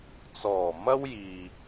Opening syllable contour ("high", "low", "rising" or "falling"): low